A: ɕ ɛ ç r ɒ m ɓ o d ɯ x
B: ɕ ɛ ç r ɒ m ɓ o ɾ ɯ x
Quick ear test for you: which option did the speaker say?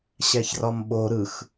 B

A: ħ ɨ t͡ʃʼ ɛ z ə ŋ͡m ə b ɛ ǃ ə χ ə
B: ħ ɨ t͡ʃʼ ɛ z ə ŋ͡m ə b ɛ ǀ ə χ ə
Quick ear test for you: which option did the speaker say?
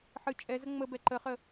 A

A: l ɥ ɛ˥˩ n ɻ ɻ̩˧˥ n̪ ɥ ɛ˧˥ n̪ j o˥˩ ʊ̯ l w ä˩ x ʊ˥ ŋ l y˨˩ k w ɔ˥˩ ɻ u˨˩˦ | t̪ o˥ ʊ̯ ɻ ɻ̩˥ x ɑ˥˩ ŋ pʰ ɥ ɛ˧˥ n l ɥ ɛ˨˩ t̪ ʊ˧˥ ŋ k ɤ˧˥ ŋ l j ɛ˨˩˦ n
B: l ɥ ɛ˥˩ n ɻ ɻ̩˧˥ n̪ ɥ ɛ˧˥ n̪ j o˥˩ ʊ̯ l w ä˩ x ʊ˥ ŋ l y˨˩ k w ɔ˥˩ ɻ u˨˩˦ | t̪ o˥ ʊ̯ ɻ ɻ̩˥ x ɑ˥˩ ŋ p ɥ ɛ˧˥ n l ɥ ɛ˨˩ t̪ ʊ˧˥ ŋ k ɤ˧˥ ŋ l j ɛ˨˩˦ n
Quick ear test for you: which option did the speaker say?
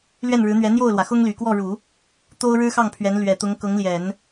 A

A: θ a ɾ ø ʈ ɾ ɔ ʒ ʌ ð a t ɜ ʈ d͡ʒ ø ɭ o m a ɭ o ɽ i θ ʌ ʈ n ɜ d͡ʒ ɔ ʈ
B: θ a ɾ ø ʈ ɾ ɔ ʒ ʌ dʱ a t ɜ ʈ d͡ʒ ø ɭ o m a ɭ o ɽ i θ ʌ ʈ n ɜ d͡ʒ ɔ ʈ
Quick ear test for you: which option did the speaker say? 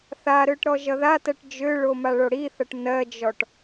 A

